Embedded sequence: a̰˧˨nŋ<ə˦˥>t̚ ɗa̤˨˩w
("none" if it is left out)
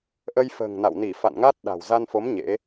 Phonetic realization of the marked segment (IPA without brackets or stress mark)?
a˦˥